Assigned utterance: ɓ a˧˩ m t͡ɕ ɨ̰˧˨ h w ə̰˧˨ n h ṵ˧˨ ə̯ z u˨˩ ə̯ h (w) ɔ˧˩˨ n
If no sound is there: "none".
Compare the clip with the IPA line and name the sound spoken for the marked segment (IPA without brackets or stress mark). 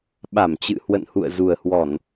w